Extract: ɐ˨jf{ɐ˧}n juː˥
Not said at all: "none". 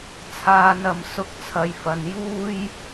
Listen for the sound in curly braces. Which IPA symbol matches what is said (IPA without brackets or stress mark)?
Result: ɐ˨